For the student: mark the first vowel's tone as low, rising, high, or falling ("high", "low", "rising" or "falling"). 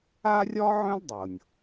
high